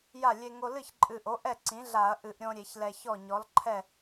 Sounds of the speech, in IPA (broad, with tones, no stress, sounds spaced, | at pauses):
j a˥˩ lʲ e˧ ŋ o˧ l ɨ˥˩ ç ǃʼ ɨ˨˩ ʔ o˩˥ ʔ ɛ˥˩ ǀ ĩ˩˥ ɮ a˧˩˧ ɐ̯ ʔ ɨ˧˩˧ ʔ ɾʲ õ˧ ɾʲ e˧˩˧ ç l ɛ˨˩ ç ɔ˥˩ ɲ ɔ˩˥ l ǃʰ ɛ˥˩